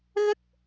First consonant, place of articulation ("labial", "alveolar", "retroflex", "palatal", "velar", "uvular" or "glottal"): velar